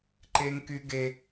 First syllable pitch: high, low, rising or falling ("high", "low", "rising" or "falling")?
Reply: high